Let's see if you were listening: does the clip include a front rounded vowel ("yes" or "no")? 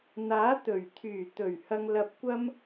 yes